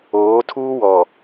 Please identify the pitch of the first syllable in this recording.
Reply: rising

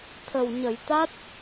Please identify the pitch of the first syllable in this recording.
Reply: low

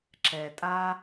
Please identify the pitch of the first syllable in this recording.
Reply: low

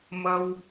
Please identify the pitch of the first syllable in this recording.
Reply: high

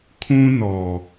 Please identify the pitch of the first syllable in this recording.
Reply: high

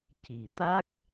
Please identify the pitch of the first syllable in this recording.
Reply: low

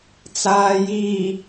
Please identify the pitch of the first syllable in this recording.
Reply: low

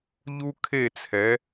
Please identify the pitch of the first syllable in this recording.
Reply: high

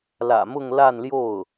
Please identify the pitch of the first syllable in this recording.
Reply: low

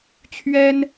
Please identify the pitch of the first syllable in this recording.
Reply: high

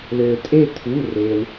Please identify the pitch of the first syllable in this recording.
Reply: low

